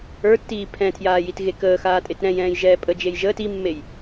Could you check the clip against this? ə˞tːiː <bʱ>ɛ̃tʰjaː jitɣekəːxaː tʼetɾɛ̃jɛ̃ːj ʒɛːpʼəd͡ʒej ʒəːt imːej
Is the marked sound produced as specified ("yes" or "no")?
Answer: no